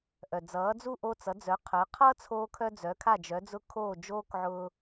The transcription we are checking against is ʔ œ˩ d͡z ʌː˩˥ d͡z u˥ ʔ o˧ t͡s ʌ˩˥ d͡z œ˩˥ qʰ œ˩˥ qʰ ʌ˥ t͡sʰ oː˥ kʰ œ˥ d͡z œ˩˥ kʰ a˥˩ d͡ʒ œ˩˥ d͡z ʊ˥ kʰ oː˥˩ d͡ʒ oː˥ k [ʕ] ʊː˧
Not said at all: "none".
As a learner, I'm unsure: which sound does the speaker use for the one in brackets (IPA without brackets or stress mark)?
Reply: ʕ